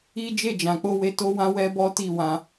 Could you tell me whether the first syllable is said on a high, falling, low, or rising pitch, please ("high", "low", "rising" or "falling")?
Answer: high